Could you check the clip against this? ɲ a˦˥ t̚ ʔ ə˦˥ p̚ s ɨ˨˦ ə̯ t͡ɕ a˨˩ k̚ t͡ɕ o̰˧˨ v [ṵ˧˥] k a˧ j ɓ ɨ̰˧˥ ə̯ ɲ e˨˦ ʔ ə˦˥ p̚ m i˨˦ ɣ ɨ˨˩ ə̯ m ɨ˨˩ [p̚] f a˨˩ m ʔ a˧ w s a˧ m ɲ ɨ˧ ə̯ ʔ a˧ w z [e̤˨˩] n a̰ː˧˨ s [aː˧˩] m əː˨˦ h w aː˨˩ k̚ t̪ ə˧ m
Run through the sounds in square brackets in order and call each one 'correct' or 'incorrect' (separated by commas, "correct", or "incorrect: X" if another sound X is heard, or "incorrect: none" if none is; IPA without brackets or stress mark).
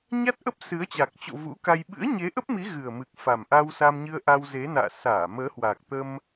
correct, incorrect: k̚, incorrect: e˨˦, correct